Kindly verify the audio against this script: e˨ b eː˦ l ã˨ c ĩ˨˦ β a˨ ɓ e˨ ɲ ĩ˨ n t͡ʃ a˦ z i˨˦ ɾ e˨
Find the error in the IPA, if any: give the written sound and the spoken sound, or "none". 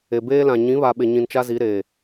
c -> ɲ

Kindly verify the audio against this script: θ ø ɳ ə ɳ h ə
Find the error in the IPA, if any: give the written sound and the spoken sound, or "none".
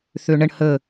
none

